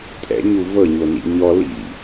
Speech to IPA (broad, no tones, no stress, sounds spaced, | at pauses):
tʼ ɛ̰ ɲ u v ɤ ɲ o n ḭ ɲ ɔ l ḭ